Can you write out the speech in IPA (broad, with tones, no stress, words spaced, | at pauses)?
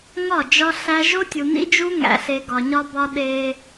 ŋɒ˦˨d͡ʒɒ˦ ɬæ˦ ʒo˦tʲu˨nḭ˦d͡ʒu˦ ŋæ̰˨ɬe˨ ɡɒ˨ɲɒ˦bɒ˦ ɗe˦